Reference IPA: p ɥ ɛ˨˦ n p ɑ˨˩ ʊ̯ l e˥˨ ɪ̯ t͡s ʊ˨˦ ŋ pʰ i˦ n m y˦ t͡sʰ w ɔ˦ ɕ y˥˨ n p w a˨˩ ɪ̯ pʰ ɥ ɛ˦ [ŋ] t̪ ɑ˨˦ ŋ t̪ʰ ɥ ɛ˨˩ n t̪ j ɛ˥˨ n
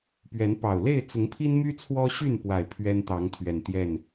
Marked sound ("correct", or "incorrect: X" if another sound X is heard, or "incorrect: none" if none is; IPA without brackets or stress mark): incorrect: n